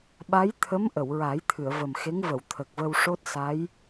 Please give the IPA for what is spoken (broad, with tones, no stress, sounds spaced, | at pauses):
ɓ a˧˥ j t̪ʰ ə˧˥ m ʔ ə˨˩˨ w ɹ a˨˩˦ j t̪ʰ ɨ˨˩˨ ə̯ v ə˨˩ m x e˧˥ ŋ v ə˨˩˨ w t̪ʰ ə˨˩ k̚ v ə˧ w ʂ o˦˥ t̚ s a˧˥ j